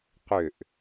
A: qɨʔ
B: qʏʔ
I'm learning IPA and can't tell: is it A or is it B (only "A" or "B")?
B